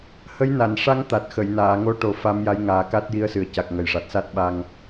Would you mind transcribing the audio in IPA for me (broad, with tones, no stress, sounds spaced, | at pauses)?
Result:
h ə˧˥ j n a˨˩˨ n ʂ a˧˥ ŋ t̪ a˨˩ t̚ x ə˨˩˨ j n aː˨˩˨ ŋ o˧˥ ʈ o˨˩ f a˧˥ m j a˧˥ j ŋ aː˨˩ k a˦˥ t̚ j i˧˥ ə̯ s ɨ˨˩ ə̯ c a˨˩ k̚ ŋ ə˨˩ j ʂ a˨˩ t̚ s a˦˥ t̚ ɓ a˧ ŋ